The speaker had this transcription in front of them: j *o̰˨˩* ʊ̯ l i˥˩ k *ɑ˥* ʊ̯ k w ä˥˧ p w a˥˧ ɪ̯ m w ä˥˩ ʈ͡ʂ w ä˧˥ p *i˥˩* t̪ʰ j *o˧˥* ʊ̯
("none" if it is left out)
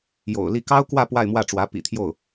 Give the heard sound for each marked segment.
o̰˨˩, ɑ˥, ḭ˨˩, o˥˩

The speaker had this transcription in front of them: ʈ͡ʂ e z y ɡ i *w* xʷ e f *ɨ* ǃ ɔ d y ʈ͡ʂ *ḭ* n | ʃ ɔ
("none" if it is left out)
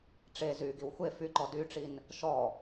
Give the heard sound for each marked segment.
w, y, i

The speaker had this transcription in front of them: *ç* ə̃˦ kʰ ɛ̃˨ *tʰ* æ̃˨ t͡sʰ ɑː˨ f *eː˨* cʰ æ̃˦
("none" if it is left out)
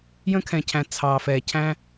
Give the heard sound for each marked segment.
j, cʰ, ɛː˨

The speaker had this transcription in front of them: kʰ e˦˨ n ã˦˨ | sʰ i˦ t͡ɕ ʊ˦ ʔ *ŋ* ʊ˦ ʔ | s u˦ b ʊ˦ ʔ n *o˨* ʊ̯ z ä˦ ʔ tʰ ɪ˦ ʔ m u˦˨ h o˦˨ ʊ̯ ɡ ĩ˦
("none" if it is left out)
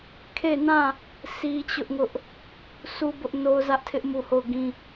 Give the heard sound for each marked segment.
ŋ, o˦

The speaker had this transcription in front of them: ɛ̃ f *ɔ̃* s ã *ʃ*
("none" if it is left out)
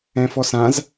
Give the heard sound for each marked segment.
ɔ, z

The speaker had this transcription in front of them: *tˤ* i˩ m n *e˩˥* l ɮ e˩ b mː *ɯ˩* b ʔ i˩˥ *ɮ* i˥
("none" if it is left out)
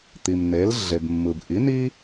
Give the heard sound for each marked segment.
t̪, e˩˥, ɯ˩, n

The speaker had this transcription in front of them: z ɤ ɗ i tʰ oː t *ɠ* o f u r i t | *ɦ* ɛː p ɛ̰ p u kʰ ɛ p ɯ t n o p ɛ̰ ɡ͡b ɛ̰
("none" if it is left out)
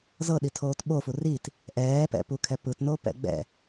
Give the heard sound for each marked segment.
ɓ, ʔ

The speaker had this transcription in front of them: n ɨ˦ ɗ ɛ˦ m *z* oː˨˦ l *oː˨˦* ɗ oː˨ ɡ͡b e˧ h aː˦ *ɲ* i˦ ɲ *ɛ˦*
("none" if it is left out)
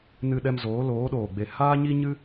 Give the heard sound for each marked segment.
z, oː˨˦, ɲ, ɨ˦

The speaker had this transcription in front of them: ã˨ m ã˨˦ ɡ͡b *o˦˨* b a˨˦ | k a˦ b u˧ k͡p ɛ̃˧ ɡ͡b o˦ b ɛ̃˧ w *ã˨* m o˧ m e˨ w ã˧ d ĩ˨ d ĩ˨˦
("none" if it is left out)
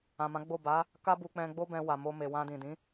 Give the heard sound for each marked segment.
o˦˨, a˨

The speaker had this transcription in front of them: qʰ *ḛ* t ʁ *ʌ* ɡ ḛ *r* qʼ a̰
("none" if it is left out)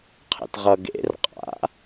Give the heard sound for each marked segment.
ḛ, ʌ, r

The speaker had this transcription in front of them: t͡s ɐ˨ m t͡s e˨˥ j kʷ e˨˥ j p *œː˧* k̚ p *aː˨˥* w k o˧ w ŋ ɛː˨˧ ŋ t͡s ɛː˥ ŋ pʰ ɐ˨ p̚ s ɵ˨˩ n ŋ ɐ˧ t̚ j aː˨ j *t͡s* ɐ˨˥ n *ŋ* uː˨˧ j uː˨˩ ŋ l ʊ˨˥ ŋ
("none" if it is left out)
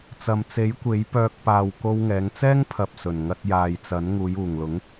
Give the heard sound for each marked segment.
œː˧, aː˨, t͡s, ŋ

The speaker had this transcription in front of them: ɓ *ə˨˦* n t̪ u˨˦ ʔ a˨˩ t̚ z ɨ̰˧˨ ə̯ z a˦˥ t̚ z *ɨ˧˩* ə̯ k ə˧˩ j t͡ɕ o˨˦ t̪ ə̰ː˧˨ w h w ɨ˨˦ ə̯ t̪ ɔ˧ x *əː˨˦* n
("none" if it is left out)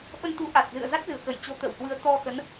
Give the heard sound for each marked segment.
ə˧, ɨ˧˩, ə˨˦

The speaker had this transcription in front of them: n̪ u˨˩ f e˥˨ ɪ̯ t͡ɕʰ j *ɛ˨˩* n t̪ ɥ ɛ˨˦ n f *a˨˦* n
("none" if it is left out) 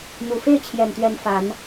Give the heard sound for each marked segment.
ɛ˨˩, a˨˦

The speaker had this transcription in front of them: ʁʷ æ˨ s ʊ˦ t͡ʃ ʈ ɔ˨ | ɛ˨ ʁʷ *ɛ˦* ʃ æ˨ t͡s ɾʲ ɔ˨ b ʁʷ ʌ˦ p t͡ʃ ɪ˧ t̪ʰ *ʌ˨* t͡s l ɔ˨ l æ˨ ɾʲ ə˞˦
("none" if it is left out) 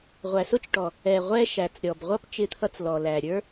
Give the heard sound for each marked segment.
ɛ˦, ʌ˧

